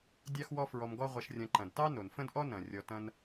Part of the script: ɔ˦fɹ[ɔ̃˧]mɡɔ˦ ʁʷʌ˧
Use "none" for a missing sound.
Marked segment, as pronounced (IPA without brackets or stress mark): ɔ˧